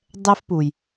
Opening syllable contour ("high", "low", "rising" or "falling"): high